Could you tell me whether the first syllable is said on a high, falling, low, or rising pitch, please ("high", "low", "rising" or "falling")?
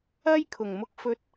high